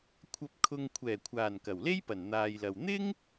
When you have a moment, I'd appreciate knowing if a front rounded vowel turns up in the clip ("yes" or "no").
no